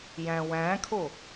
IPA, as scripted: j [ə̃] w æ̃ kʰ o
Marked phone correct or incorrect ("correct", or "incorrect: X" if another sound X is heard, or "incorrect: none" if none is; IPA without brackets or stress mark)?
incorrect: æ̃